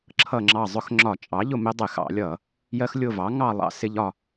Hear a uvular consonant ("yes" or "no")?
no